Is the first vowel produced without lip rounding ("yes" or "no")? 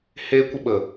yes